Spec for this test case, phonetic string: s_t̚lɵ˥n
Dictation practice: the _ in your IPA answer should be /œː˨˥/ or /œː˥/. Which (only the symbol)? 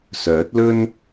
œː˨˥